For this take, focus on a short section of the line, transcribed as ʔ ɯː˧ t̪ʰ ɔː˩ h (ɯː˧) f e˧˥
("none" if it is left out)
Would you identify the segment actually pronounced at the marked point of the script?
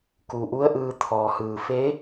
ɯː˩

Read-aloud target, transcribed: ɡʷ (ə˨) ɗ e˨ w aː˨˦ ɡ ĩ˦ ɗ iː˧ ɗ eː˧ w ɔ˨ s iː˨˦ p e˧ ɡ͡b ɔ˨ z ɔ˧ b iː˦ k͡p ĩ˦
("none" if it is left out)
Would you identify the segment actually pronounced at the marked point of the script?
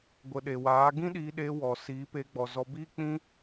ə˨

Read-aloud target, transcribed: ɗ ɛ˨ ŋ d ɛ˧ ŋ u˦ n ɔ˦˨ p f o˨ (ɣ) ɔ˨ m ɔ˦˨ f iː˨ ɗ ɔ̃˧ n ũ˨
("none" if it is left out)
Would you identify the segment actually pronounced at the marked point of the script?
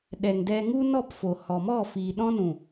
h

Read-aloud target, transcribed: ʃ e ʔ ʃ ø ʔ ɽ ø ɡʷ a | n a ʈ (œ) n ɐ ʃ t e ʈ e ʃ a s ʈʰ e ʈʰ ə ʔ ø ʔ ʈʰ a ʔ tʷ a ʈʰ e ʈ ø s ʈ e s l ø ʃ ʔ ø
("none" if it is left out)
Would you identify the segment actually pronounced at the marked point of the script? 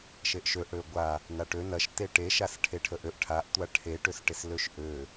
ø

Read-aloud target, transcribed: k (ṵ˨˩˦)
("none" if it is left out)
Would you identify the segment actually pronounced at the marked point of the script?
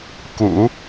ṵ˨˩˦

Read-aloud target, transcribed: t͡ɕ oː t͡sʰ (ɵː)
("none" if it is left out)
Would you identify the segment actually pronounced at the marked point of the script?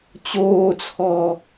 ɔː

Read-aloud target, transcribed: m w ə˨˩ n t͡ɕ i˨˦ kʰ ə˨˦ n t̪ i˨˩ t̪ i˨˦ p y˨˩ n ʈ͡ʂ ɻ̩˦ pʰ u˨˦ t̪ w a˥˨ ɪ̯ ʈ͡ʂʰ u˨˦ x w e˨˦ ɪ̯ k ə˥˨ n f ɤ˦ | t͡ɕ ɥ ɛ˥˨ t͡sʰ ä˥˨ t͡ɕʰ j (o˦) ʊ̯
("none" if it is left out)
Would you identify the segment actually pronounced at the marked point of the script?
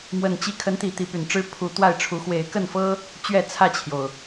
o˩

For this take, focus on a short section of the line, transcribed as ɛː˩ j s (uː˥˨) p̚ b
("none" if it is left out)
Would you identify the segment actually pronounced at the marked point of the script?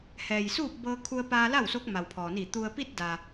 uː˥˨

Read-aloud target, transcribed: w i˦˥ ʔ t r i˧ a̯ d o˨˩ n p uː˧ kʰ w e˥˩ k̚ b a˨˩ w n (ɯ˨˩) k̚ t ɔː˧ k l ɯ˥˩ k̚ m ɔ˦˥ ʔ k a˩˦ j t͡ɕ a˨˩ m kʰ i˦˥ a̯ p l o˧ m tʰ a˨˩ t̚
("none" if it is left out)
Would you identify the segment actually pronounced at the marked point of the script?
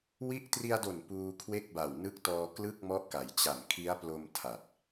ɯ˦˥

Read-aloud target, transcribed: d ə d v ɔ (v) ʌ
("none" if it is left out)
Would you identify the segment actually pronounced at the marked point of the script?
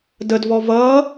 v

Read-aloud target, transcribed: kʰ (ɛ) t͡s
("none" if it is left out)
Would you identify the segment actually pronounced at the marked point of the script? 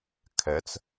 ɛ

